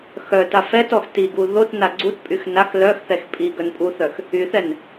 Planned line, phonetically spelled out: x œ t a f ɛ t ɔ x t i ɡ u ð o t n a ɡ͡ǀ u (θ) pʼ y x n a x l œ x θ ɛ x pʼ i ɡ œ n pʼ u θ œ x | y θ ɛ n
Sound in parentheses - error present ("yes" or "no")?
yes